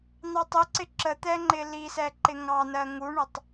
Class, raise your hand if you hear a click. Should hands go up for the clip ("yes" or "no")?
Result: yes